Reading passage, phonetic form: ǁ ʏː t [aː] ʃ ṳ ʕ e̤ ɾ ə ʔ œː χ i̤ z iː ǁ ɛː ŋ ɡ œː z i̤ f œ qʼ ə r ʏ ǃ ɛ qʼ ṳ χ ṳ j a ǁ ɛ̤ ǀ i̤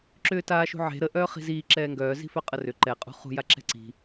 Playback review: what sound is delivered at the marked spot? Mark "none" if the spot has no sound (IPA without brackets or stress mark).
aː